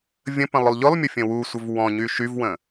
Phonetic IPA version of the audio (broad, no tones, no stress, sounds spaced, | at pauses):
vʲ ə̃ p ə̃ lˠ ʊ lˠ ʎ ʊ lˠ mʲ ʊ fʲ ə̃ w u sʷ ə v w ɔ̃ ɲ y ʃ y v w ə̃